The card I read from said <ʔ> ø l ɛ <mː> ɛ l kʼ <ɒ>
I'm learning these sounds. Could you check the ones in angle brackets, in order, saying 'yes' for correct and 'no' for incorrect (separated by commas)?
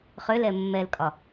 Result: no, yes, yes